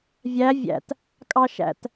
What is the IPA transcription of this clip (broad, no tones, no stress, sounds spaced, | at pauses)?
vʲ æ vʲ æ̰ t | kʼ ɑ ʃ æ̰ t